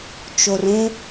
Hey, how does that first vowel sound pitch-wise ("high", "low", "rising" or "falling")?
low